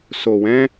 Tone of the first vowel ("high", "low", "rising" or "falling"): low